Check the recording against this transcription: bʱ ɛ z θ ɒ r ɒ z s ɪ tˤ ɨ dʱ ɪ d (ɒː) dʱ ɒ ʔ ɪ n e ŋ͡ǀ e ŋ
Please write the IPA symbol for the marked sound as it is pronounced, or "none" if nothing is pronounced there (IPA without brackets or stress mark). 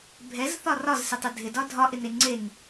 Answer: ɒ